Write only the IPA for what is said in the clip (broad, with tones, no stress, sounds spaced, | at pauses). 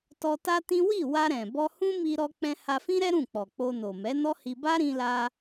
t ɔ˧ t a˦ t ĩ˦ w i˦˨ w a˧ ɾ ɛ̃˨ b ɔ˧ h ũ˦ m i˧ ɾ ɔ˧ k͡p ɛ̃˧ h a˧ f ĩ˦ ɾ ɛ˦ ɾ ũ˦˨ k͡p ɔ˨ k͡p o˧ n o˨ m ɛ˨˦ n ɔ˦ h i˧ b a˦ ɾ ĩ˧ l a˧